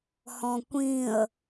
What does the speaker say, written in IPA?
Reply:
h ɔ̃ kʷ ĩ ə̯

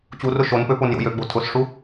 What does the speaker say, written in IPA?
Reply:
t͡ɕ u r ʊ ʃ o n p ø p o n j o̰ j ø ɡ͡b o̤ tʰ ʊ s ʂ u

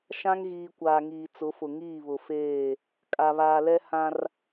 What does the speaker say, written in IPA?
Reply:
ʃ ã˦ ŋ ɣ iː˨ kʷ aː˨ ŋ iː˨ t͡s ʊ˨˦ f ʊ˨ ŋ iː˦˨ β ʊ˨ f eː˦˨ | kʼ a˨ β aː˨ l ɛ˦ h ã˦ r

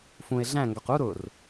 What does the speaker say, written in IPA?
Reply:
f ũ e̯ ɮ æ̃ ŋ ɡ ɒ q u ɾ ʊ r

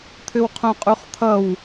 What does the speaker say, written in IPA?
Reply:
t̪ʰ ʏ w qʰ õ qʼ u χ t̪ʰ ʌ w

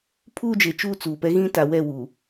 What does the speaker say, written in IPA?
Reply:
pʰ uː˦ d͡ʒ e˨ t͡ʃ uː˦ t͡s uː˨ p ɛ˦ ɣ ĩ˦ t a˨ w ɛ˦˨ w uː˨

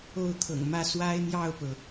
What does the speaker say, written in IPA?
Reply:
o˥˩ ʊ̯ t̪ʰ ɤ̰˨˩ ŋ m ä˥ s w a˥ ɪ̯ n̪ j ɑ˥˩ ʊ̯ p ɤ˩

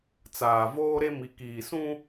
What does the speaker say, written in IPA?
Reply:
t͡s aː˨ v oː˦ ɾ e˦ m i˨ k iː˨ s ũ˦

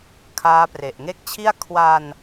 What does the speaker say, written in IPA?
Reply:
kʰ aː˦˥ p r e˨˩ ʔ ŋ e˦˥ k̚ t͡ɕʰ i˥˩ a̯ kʰ w a˧ n

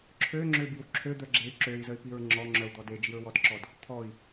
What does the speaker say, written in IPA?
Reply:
ǁʰ ø ŋ͡ǁ ø b i w ǁʰ ø d̪ œ ɡ͡ǁ e y̯ ǁ ø i̯ z ə y̯ p i ɹ ŋ͡ǁ ɔ ŋ͡ǁ œ u̯ d̪ ɔ d e d͡ʒ i ɹ w ɔ d ǁ ɔ d | t̪ʰ ɔ i̯

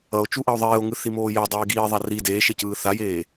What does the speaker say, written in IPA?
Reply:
ʌ o̯ t͡ʃ u ʔ ʌ o̯ ðˤ eː o̯ ŋ ɯ θ i m oː j ɛ dˤ iː ɡ iː ðˤ a r i d eː ʃ e c ɯː θ a j eː

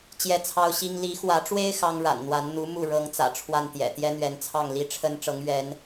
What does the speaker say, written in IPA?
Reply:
t͡ɕ j ɛ˥˩ t͡sʰ ɑ˥ ʊ̯ ɕ i˥ ŋ l i˧˥ x w ä˧˥ ʈ͡ʂ w e˥ ɪ̯ x ɑ˥ ŋ ɻ a̰˨˩ n n̪ w a˧˥ n n̪ u˧˥ m u˥˩ ɻ ɤ˧˥ ŋ t͡s ä̰˨˩ ʈ͡ʂʰ w a˥˩ n t̪ j ɛ̰˨˩ t̪ j ɛ˥ n̪ ɥ ɛ˧˥ n t͡sʰ ɑ˥˩ ŋ l i˥ ʈ͡ʂʰ ə˥ n ʈ͡ʂ ɤ˧˥ ŋ ɥ ɛ˧˥ n

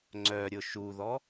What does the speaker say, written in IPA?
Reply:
ŋ͡ǀ œ ɾʲ ʊ ʃ u ð ɔ

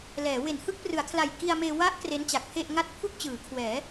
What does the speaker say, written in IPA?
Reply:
l ɛː˩˦ w e˨˩ n h ɯ˥˩ k̚ p r ɯ˩˦ a̯ kʰ l a˨˩ j k i˧ a̯ m eː˧ w a˦˥ ʔ k r e˦˥ n t͡ɕ a˨˩ k̚ pʰ e˥˩ ʔ ŋ a˦˥ t̚ pʰ u˥˩ k̚ t͡ɕ ɯː˩˦ kʰ w ɛː˩˦

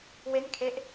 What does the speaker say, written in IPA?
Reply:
w e˥˩ n kʰ e˥˩ ʔ

